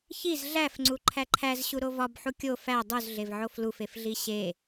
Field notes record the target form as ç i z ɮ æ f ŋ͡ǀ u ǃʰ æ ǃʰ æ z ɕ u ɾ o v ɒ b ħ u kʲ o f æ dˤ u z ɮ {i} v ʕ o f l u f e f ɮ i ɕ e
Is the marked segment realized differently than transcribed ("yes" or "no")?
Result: yes